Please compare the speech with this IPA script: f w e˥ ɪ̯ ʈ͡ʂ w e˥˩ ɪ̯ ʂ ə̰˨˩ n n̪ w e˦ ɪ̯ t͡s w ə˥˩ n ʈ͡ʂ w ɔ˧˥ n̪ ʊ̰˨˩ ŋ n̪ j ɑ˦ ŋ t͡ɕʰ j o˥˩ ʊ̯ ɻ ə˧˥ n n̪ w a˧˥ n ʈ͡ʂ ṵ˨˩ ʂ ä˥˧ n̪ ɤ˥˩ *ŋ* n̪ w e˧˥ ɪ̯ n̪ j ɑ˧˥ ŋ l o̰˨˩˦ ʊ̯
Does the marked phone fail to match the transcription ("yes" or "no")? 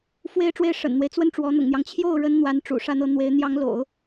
yes